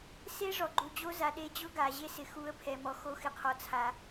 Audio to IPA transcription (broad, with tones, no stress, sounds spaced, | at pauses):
s e˦ ʐ ɔ˨ ɡ͡ǃ u˨ d͡ʑ o˧ z a˨ ɗ e˧ d͡ʑ ʊ˦ ɡ a˨ ʑ e˧ s ɪ˨ x u˨˦ ə̯ pʰ ɛ˨ m ɔ˨ x o˦ x ɪ˧ qʰ ɔ˧ t͡sʰ a˧